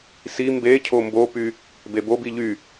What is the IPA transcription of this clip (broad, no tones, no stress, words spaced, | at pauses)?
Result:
si mbe cʰombopy | bebo biʎy